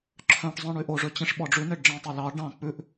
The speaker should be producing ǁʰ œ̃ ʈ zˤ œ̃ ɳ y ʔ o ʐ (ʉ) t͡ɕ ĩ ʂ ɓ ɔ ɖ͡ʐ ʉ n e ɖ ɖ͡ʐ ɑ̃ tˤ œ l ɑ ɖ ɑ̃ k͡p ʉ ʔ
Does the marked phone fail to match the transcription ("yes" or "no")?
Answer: yes